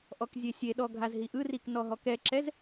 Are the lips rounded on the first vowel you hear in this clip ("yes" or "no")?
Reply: yes